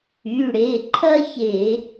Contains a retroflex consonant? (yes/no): yes